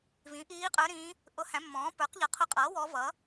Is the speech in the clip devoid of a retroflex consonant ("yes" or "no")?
yes